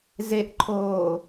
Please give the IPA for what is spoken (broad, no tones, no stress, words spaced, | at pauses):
zeʔǃʰoː